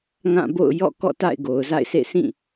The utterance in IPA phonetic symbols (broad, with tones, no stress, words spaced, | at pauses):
ŋã˦˨bo̰˦˨ʊ̯ jɔ̰˦˨kɔ̰˦˨ ta̰˦˨ɪ̯ɡo˨ʊ̯za̰˦˨ɪ̯sʰḛ˦˨ sĩ˦˨